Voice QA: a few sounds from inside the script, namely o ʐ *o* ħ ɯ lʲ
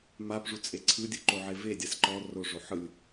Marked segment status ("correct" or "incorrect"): correct